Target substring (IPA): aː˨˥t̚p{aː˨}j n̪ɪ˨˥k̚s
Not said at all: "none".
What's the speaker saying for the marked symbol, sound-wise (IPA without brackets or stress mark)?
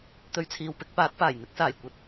aː˨˩